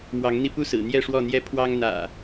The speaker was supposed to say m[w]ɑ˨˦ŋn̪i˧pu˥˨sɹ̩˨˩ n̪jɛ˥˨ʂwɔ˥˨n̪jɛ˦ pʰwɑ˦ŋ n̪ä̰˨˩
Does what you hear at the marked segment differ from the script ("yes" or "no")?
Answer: no